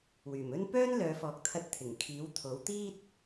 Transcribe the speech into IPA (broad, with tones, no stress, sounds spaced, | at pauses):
w yː˨˩ m ɵ˥ n p œː˥ n l œː˨˧ f ɔː˨ k̚ t̪ʰ ɐ˧ t̚ t̪ʰ ɪ˨˩ ŋ kʰ iː˨˥ w t̪ʰ o˨˥ w t̪ iː˥ t̚